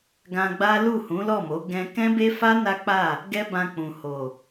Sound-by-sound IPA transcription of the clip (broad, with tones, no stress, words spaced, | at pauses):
ɡã˧ɡ͡ba˦lu˦˨ hũ˨˦lɔ˦˨mo˨˦ ɡɛ̃˧ kɛ̃˦be˦fa˦ na˦k͡pa˦˨ | ɡɛ˦bã˧ k͡pũ˨ ho˨